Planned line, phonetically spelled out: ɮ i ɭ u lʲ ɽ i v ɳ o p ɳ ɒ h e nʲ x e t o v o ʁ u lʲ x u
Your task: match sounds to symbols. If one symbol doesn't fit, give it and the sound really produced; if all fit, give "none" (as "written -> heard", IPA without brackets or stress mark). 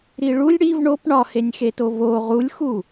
ɮ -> ɾ